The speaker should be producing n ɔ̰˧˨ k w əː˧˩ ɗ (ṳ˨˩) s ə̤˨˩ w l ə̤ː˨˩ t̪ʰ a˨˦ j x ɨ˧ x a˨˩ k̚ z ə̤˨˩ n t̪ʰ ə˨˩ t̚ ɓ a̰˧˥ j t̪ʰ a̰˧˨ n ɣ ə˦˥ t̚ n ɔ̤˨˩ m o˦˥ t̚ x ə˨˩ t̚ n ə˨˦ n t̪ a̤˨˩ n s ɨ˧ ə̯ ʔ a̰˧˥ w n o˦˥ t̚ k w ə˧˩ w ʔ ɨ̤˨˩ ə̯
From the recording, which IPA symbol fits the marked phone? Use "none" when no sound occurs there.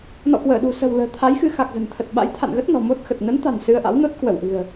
ṳ˨˩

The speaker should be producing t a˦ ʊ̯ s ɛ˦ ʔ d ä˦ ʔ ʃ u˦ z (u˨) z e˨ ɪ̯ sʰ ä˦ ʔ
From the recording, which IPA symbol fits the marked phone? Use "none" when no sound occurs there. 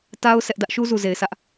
u˨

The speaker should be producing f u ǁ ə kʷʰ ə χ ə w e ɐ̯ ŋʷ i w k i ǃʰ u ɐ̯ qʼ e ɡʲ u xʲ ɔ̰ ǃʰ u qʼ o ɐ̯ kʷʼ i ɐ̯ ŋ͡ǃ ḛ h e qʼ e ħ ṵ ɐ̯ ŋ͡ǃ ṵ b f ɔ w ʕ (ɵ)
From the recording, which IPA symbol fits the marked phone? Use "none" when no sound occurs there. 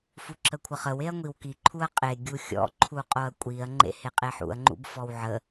ə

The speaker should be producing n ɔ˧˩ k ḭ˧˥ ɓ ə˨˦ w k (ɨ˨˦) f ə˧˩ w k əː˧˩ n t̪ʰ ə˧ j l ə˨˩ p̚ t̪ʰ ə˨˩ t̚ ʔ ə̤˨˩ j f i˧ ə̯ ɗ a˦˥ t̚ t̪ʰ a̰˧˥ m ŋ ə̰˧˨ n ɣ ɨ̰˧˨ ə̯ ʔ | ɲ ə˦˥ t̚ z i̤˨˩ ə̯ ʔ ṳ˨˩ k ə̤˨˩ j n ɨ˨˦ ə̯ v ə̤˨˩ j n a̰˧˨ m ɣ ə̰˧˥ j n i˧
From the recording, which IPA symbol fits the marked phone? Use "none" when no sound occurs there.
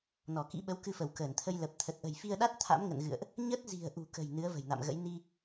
ɨ˧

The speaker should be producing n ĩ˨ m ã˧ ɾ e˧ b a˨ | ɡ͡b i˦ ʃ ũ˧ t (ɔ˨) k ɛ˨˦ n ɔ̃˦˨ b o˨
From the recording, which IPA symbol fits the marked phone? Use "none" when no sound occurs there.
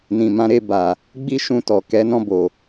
ɔ˨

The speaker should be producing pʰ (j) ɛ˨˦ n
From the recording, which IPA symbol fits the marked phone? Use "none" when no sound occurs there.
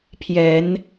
j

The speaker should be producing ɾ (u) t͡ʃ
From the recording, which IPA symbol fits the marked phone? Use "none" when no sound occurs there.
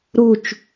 u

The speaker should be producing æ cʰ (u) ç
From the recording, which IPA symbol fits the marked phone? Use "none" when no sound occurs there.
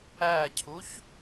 u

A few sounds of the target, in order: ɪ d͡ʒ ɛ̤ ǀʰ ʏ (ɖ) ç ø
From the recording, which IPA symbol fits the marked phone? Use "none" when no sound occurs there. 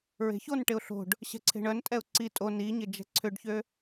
ɖ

